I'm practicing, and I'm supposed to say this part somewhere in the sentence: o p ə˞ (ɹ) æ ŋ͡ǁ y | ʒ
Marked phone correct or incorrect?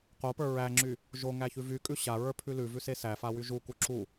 correct